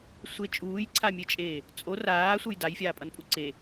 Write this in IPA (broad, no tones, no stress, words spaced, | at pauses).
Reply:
sʷe t͡ʃʼuːjǀʰamʲet͡ʃʼeː | t͡sʼo raːsʷʌj dajfʲaːpʼʌnpʼu ǀe